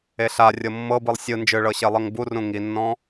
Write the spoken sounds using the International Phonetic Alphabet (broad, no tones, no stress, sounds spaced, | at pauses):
e ɬ a rʲ ɤ mː ɤ b ɯ lˠ sʲ ɯ n d͡ʒ ɯ ɭ ɤ ɕ e lˠ ɤ ŋ b u r ũ ŋ i nː ɔ̃